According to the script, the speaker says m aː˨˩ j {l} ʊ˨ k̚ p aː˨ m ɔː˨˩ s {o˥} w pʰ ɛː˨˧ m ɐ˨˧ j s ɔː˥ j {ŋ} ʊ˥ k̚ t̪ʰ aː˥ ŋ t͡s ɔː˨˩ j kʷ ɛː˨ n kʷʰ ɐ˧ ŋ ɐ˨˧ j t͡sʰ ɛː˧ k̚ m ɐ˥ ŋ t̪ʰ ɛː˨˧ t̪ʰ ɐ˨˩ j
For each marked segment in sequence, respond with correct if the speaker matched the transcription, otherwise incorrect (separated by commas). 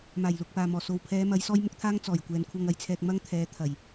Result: correct, incorrect, incorrect